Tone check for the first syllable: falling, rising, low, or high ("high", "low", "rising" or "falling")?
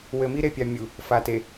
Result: low